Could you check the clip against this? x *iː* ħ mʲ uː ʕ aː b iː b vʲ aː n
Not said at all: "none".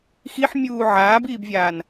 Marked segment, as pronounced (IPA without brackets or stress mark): i